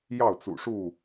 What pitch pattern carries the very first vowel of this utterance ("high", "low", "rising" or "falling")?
falling